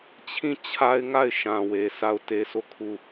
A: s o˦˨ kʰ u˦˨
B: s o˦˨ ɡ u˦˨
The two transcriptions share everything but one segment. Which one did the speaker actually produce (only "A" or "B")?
A